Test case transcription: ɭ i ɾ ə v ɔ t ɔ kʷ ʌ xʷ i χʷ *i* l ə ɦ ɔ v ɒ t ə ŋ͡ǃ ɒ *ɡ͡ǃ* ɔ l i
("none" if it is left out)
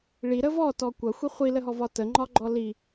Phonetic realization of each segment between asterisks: i, ɡ͡ǃ

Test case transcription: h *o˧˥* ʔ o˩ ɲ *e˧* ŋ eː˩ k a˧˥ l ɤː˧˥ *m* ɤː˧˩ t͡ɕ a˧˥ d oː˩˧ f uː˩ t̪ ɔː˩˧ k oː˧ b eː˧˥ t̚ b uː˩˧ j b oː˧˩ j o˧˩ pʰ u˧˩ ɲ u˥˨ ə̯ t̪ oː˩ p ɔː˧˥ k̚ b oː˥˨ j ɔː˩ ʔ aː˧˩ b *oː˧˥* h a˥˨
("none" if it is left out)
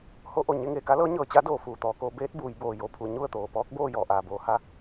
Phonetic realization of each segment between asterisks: o˧˥, e˧, ɲ, oː˧

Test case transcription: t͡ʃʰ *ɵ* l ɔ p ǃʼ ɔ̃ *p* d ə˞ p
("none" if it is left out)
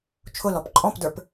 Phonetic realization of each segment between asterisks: ʊ, p

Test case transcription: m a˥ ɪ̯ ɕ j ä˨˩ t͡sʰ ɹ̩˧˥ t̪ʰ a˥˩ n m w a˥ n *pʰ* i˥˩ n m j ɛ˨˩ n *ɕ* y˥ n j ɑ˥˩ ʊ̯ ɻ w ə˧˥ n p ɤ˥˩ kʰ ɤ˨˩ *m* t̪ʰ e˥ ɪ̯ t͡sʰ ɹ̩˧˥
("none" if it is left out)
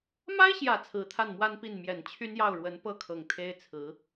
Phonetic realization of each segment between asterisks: p, t͡ɕʰ, ŋ

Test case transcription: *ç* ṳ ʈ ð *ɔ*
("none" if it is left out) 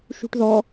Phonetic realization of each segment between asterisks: ʃ, ɔ

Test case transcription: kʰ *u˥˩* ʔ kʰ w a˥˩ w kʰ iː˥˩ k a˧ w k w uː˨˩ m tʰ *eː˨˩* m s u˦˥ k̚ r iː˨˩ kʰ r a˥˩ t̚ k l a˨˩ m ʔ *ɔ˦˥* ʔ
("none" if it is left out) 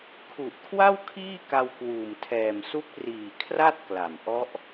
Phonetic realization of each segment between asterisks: u˨˩, ɛː˨˩, ɔ˦˥

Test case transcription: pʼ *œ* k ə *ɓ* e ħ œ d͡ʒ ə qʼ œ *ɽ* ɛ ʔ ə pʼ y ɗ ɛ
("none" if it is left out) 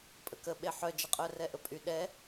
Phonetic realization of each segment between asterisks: ə, ɓ, r

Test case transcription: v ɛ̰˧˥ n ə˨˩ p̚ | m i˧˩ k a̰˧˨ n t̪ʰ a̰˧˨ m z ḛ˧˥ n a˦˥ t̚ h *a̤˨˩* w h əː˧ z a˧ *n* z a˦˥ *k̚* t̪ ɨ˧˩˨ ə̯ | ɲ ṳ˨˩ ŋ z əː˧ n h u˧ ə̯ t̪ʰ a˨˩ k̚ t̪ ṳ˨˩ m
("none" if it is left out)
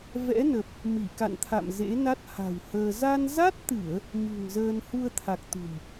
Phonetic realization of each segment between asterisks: a̤˨˩, n, t̚

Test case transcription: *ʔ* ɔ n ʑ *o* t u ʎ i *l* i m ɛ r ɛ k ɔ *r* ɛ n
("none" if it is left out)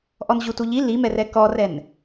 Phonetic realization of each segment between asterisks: ʔ, u, l, r

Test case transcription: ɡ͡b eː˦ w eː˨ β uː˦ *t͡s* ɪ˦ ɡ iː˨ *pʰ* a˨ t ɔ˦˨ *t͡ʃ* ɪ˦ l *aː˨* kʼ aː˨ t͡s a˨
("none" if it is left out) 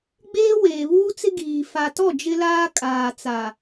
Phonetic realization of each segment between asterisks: t͡s, f, d͡ʒ, aː˦

